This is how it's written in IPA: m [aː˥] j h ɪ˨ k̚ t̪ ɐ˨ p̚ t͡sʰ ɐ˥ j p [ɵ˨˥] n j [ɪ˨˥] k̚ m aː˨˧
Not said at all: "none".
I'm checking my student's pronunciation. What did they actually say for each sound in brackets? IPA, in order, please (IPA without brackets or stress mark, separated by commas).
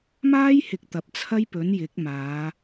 aː˥, ɵ˨˥, ɪ˨˥